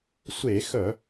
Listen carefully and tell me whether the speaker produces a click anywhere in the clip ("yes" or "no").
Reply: no